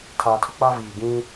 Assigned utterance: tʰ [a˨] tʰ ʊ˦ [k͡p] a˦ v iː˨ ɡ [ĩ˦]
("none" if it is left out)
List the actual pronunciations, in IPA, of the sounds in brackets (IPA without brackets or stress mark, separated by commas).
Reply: aː˨, k͡p, ĩ˦